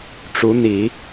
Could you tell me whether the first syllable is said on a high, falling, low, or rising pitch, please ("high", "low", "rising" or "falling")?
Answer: rising